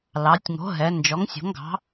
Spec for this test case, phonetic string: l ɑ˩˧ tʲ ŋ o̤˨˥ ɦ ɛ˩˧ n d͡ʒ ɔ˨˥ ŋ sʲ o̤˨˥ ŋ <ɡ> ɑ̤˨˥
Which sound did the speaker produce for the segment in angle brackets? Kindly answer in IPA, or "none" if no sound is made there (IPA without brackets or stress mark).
ɡ